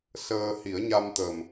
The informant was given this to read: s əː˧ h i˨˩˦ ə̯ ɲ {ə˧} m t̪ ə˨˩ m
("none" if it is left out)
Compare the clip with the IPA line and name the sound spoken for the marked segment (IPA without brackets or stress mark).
a˧